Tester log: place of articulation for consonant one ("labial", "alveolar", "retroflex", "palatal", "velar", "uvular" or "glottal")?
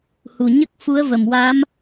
glottal